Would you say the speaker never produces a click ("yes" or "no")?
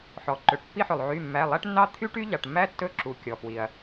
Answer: no